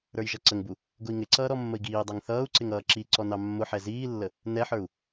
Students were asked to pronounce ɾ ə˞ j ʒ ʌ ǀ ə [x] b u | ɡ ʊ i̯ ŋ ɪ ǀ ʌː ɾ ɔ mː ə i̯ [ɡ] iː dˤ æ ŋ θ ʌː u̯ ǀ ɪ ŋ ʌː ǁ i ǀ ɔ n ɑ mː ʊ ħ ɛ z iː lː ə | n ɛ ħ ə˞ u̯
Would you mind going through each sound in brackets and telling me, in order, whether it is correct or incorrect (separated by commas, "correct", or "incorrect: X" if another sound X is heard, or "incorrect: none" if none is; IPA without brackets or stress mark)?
incorrect: ŋ, correct